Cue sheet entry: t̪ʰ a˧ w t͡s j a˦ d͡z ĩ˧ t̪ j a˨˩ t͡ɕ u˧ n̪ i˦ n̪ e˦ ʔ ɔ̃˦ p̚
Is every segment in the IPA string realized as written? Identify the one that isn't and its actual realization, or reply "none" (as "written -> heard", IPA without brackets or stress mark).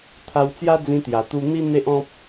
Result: t͡ɕ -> t̪